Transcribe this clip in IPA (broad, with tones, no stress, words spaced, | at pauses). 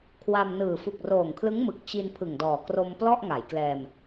kʰwa˧m nɯː˨˩ fu˨˩k̚roː˨˩ŋkʰlɯ˦˥ŋ mɯ˨˩k̚t͡ɕi˧n pʰɯ˨˩ŋdɔː˨˩ kro˧m plɔ˥˩ʔŋa˩˦j klɛː˧m